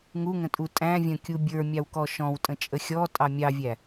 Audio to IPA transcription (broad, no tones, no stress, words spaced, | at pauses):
ŋuŋə̃tʼu tʼæ̃ vʲə̃kʲu bʲə˞mʲɑwkɔ ʃɔ̃wtʼə̃t͡ʃʼə xʲɔtʼɑ mʲɑvʲæ